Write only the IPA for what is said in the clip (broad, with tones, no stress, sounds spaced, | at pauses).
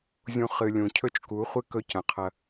zʲ ũ˦ χ ɨ˧ lʲ ũ˨ cʰ ɵ˦ t͡ʃ k u˨˦ χʷ ɨ˦ k ɵ˦ c ɐ̃˨ qʰ ɐ˧